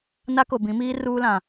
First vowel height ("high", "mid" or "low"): low